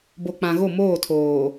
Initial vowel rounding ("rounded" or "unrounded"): rounded